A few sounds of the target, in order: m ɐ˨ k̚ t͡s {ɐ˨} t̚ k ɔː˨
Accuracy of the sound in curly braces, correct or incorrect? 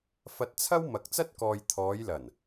incorrect